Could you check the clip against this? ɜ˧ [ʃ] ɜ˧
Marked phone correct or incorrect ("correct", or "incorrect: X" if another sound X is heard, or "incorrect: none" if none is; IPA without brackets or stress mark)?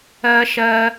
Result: correct